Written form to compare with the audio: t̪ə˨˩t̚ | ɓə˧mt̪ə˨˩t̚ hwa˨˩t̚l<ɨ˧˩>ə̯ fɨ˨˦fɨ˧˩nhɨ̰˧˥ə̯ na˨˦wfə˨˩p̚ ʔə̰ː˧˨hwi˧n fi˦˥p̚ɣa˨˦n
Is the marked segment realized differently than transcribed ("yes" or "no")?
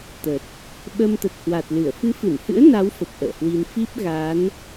no